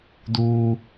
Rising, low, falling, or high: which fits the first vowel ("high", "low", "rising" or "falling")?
high